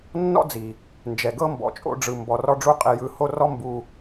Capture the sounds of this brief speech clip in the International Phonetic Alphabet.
nː ɔ̰˦ d͡z i˨ | n d͡ʒ ɛ˨ ɡ ɤ˦ m b ɔ̰˨ t͡ʃʼ o̰˧ ɖ͡ʐ ɯ˨ m b ɔ˨ r ɔ˧ ɖ͡ʐ u˧ qʼ i˨ j ɯ˨ h o˦ r ɔ˦ m b u˧

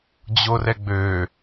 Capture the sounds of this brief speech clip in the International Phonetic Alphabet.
d͡ʑ o r ɛ ɡ͡b ø

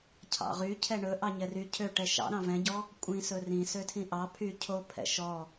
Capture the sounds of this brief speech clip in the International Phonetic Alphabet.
cʰ ɑ̰ ʁ y cʰ ɛ ɳ ɵ ʔ ɑ ɲ ɛ r y cʰ ø ʈ ɛ ʃ ɑ̰ ɾ ɑ̃ v ɛ̃ ɟ ɔ | kʷʼ ĩ s ɵ r ĩ s ø tʰ ĩ ʔ ɑ pʰ y cʰ o pʰ ɛ̰ ʃ ɔ

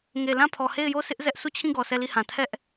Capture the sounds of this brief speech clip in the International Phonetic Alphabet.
ŋ e˨ l ã˦˨ pʰ ɔ˨ h e˦˨ ɪ̯ j o˦˨ sʰ ɪ˦ ʔ z ɛ˦ ʔ sʰ u˦˨ t͡ɕʰ ĩ˦˨ ɡ ɔ˨ s ɛ˦˨ l i˦˨ h ã˨ tʰ ɛ˦ ʔ

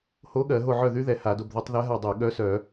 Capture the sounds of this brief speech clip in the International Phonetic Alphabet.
h o˧˥ ɠ ɜ˧˩˧ ɦ o˦˨ ʕ œ˦˨ ð y˧˥ ð ɛ˧˩˧ h a˧˩˧ d o˦˨ b ð o˧˥ tˤ ð ɛ˧˥ ɦ a˦˨ dˤ e˧˩˧ ɠ œ˧˥ s œ˧˩˧

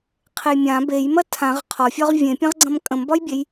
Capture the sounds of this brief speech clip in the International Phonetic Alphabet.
qʰ e j mʲ ã b e j m ɐ tʰ ã ʁ qʰ ɒ fʲ ɒ ʁ vʲ ẽ pʲ ɐ̃ ʁ ɡ͡ǀ ɐ̃ m kʼ ə̃ m b ɒ j bʲ e j

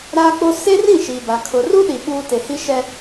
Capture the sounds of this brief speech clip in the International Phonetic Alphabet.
ɾ aː˦ k͡p o˦ s e˦ r ĩ˦˨ ʃ i˨ b a˨ kʰ ʊ˨ r u˦ ɗ i˨ ɓ uː˦ t e˨ h i˦ ʃ ɛ˦

